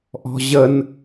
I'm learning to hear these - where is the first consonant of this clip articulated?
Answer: throat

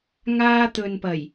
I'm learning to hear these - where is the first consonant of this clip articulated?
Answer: velum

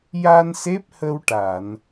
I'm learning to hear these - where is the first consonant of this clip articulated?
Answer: palate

